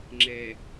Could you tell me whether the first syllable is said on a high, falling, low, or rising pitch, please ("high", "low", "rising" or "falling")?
low